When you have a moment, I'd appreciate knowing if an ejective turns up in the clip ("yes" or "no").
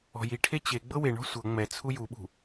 no